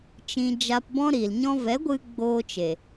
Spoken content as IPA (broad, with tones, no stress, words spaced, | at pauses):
t͡ʃĩ˨ d͡ʒa˧pbɔ̃˦ ɾi˨l ɲɔ̃˧vɛ˨˦ɡʷɨ˧ ɡ͡boː˧t͡ʃe˨